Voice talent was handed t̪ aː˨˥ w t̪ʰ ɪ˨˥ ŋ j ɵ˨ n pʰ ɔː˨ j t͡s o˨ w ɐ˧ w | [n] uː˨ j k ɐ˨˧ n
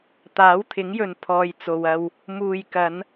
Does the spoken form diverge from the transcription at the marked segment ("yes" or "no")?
yes